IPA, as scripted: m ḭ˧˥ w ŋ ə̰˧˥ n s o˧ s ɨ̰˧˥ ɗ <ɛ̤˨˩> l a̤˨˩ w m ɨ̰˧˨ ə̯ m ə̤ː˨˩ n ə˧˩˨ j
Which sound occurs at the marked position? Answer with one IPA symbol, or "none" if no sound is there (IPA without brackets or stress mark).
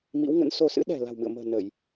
ɛ̤˨˩